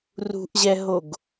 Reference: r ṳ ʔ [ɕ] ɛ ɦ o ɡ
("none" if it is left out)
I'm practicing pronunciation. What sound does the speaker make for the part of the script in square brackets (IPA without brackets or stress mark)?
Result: ʑ